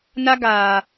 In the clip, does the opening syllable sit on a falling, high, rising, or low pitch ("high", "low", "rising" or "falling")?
high